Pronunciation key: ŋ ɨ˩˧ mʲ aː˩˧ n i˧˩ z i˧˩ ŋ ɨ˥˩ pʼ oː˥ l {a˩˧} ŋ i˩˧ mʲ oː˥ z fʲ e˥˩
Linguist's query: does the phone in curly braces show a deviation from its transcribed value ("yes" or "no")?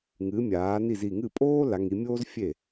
no